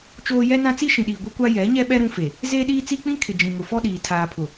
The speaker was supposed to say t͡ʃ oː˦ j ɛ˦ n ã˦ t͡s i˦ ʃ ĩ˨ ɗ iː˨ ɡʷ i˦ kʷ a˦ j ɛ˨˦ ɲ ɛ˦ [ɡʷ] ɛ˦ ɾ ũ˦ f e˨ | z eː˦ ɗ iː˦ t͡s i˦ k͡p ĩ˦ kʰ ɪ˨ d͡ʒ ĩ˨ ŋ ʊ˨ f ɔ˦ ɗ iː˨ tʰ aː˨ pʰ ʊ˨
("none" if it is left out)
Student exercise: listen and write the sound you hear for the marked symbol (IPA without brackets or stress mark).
ɓ